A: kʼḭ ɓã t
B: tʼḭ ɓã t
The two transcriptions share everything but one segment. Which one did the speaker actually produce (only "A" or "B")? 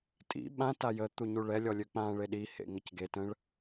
B